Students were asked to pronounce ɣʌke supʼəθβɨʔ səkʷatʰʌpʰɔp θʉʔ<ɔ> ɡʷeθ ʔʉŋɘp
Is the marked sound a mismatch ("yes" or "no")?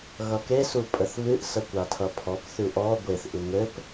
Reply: no